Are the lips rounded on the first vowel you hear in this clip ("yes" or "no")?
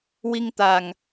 no